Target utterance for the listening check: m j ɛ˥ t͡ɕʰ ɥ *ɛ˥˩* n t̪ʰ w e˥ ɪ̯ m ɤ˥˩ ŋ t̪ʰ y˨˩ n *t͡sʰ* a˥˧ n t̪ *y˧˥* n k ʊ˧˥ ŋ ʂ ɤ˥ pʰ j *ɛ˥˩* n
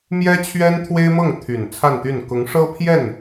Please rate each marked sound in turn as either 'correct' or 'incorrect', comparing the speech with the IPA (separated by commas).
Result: incorrect, correct, incorrect, correct